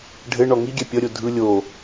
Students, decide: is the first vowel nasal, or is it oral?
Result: oral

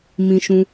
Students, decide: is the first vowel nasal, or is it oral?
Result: nasal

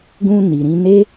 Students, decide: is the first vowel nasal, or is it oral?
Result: nasal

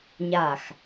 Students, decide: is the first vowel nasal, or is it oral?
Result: oral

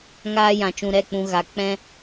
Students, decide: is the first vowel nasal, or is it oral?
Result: oral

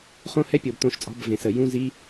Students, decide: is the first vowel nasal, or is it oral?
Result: nasal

